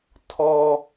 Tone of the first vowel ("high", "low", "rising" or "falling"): high